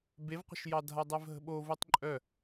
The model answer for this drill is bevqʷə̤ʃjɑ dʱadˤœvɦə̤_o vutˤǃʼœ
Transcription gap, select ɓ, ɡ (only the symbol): ɓ